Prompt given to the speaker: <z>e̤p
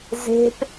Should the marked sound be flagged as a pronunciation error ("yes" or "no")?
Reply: no